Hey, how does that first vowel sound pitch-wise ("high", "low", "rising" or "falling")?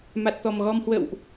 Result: low